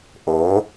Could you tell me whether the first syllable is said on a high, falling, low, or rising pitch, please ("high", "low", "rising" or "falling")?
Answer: rising